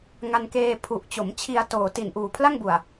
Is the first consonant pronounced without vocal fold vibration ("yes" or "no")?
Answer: no